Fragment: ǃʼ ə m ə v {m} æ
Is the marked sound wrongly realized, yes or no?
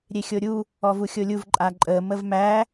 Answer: no